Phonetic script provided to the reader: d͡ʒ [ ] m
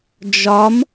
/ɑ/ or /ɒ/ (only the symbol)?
ɒ